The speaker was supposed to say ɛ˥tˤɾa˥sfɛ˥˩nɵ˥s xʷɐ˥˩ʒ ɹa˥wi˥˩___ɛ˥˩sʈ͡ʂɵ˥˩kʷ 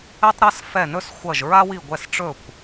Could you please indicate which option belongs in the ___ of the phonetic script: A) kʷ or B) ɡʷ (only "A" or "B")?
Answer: B